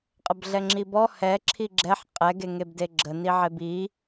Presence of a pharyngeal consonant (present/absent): present